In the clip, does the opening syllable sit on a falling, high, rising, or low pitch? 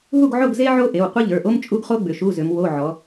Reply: falling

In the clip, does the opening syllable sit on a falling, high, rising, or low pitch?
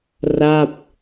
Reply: falling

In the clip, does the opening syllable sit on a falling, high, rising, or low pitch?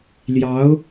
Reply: rising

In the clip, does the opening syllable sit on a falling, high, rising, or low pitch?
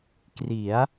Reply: rising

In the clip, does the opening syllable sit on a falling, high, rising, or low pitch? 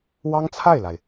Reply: high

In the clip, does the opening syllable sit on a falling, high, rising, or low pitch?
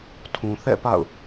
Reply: low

